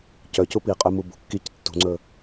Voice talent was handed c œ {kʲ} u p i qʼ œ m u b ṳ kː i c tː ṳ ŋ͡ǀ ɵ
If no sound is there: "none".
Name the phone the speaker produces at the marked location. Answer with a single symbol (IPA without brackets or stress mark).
c